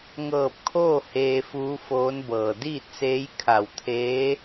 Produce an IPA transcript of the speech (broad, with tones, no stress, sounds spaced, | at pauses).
ŋ ɤː˧˩ p̚ kʰ oː˥˨ h eː˧ f uː˧˥ f oː˧˥ n b ɤː˩ d iː˥˨ t̚ s eː˧˥ j kʰ a˧˩ w t̪ʰ eː˧˥